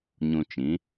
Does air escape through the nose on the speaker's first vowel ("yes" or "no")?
yes